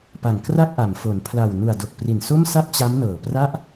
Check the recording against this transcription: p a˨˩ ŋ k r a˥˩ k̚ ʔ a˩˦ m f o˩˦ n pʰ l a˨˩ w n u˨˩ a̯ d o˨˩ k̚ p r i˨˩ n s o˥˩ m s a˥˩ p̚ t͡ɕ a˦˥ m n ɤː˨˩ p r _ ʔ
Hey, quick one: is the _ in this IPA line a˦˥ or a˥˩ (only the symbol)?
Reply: a˥˩